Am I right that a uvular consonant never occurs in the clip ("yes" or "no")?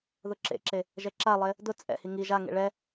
yes